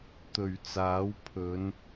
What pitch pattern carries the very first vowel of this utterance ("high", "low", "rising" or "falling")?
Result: low